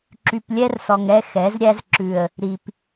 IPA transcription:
ǁ y˨ p lʲ ɛ˦ r s ɔ˨ ŋ ɛ˦ x ɛ˨˦ z ɾʲ æ˦ z ǁ ʉ˨ ə̯ | ɾ i˨ p

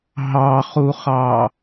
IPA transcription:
ɦ ɑ χ u χ ɑ

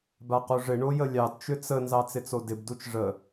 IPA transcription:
b a q o ʐ ɪ ɳ o j ə lʲ ɑ d t͡ʃ ʏ t͡s ə n z ɑ t͡s ɪ t͡s o d ɪ b d u t͡ʃ ʐ ə

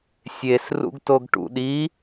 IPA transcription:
sʲ e s r ṵ ɡ t o ɡ ʈ ṵ ɗ i

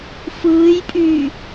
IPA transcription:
f ɯː j pʼ yː

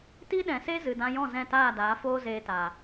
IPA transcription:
t i˦ ɗ ɛ̃˨ s e˦ z ɨ˨ d ã˧ j ɔ̃˦˨ z ɛ̃˦˨ t aː˦˨ d aː˨˦ f oː˦ z eː˧ t aː˨

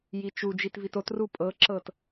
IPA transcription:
j i t͡ʃ u d͡ʒ i t v i t o t r u pʼ ɤ ǁ ɤ t

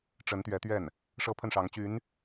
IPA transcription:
ʈ͡ʂ ə˧˥ n t̪ ɥ ɛ˧˥ t̪ ɥ ɛ˥˩ n | ʂ ɤ˥ pʰ ə˥˩ n ʂ ɑ˧˥ ŋ t͡ɕ y˧˥ n

